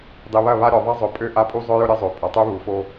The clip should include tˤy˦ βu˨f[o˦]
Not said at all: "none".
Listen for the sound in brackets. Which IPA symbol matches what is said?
o˦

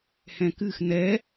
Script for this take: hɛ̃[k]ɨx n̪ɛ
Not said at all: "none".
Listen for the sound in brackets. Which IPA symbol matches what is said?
k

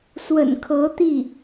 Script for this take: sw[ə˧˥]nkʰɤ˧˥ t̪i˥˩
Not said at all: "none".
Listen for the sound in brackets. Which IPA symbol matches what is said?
ə̰˨˩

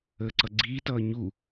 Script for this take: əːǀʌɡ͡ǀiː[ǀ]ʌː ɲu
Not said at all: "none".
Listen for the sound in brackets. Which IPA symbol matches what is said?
t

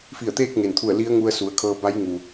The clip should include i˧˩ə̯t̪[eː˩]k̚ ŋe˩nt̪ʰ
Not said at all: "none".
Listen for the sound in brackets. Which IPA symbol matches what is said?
eː˥˨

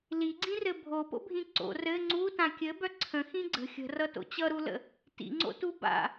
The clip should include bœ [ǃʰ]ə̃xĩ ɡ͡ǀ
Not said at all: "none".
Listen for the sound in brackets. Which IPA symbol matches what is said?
ǀʰ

